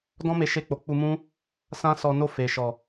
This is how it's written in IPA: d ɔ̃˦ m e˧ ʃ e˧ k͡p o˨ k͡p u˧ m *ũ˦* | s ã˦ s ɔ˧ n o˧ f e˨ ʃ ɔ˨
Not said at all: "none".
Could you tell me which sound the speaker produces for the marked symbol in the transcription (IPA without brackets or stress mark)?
ũ˦